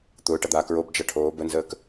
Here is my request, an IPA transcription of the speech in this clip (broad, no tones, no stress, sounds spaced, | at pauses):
t̪ ʊː ʈ ʌ d̪ aː k ɹ o b d͡ʒ ʌ ʈʰ oː b ə n z əː k